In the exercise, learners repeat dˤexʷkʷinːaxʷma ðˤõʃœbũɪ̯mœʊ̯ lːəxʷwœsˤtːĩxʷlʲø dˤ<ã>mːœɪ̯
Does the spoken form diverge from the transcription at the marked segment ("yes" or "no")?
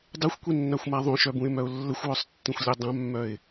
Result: no